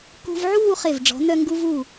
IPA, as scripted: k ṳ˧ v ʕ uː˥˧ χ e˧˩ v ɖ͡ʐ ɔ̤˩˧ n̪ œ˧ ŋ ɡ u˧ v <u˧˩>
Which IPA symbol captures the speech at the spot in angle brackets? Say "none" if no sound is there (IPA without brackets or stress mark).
u˧˩